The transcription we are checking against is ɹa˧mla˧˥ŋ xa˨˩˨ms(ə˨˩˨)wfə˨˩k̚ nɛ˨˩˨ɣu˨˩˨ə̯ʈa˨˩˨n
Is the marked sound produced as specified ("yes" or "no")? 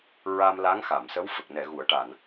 no